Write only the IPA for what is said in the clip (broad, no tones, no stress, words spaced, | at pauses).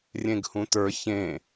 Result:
rʲẽɡhũtə˞ çẽ